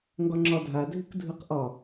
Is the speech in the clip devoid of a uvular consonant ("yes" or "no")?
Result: no